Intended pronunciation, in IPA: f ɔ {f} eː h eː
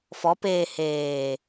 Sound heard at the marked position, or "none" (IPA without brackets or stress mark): p